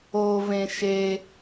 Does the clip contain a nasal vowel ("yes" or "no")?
yes